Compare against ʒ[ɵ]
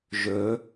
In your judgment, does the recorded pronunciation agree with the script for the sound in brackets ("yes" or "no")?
yes